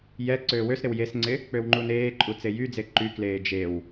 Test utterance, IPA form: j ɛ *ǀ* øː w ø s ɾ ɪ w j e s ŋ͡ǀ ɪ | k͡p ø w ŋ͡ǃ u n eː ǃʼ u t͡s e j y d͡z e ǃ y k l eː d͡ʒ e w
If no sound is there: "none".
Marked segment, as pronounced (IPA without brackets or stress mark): ǀ